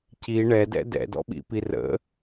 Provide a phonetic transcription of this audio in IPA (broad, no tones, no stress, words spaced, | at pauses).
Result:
ci ɳɛdɛ̰ dɛ̰dɔ̰ɓḭpi rə̰